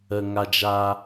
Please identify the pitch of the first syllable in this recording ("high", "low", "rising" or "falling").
low